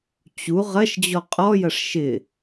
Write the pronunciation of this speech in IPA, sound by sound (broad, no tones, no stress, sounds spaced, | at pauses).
t͡ɕ u ʁ ɐ ʃ d͡ʑ ɔ qʼ ɔ j ɐ ʂ ʃ ɪ